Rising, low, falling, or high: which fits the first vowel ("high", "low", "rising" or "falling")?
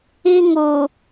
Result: high